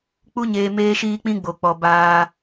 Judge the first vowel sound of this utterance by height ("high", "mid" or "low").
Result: high